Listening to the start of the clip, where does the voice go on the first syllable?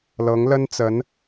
rising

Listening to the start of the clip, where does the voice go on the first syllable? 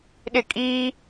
falling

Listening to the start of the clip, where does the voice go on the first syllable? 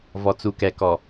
low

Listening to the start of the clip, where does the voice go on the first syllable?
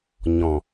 low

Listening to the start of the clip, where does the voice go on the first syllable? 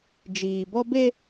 low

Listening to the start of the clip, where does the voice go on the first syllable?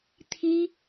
high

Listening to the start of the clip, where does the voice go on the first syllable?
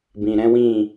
low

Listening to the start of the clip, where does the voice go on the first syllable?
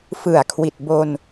low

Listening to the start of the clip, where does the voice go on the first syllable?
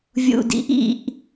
low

